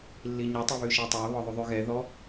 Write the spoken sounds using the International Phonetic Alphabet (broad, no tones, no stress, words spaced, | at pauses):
lːiɲɵ tˤʉβʉʃɛtˤæ βɔðˤuðˤyɣɛ ðɔ